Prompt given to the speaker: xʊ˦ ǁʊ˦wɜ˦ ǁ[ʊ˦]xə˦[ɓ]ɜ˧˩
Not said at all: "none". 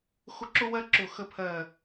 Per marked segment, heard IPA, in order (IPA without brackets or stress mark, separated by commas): ʊ˧˩, pʰ